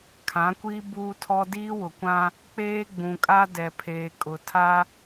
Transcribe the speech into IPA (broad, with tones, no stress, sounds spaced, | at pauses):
kʰ ã˨˦ kʷ iː˦ b uː˦ tʰ ɔ˦ d iː˦ w ʊ˨ kʷ ã˦ | k͡p eː˦ ɡ͡b ũ˨ kʼ a˦ d ɛ˨ pʰ eː˨ kʼ ʊ˨ tʰ a˦